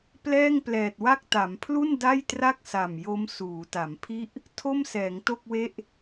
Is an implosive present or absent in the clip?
absent